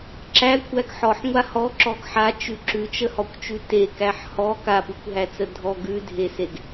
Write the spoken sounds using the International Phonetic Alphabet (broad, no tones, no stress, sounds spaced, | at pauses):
ǁ æ kʷʰ æ ɡ ħ ɔ ħ ŋʷ a h ɔ ǁ ɔ ɡ ħ a t͡ʃ ʉ ǁ ʉ t͡ʃ ə h ɔ kʷ t͡ʃ ʉ t e k æ ħ h ɔ k a p ʉ kʷ ɦ æ t͡s ə dʱ ɔ ɡ ʉ dʱ e s e ɡ